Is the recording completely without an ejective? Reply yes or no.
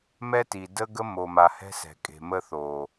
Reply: no